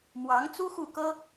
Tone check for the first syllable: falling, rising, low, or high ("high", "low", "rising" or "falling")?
rising